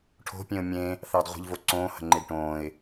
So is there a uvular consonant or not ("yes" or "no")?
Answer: yes